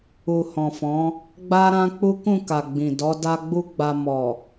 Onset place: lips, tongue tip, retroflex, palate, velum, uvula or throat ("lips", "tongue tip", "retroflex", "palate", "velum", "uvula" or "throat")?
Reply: throat